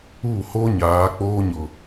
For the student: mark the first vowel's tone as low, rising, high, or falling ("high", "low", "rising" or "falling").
falling